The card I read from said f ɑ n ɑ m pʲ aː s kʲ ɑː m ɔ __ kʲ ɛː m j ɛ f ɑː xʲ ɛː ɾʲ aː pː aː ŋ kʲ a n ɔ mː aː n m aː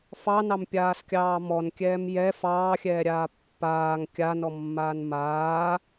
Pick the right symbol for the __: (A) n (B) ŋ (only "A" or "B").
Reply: A